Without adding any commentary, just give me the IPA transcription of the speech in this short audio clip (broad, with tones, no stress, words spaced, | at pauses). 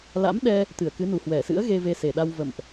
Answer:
la̰˧˥mɗɛ˧ | t̪ɨ˧˩ə̯kɨ˨˦nu˨˩ hwɛ˧˩sɨ̰˧˥ə̯ ɣe˧ve˧se˨˩ɗa˧w və̰˧˨mʔ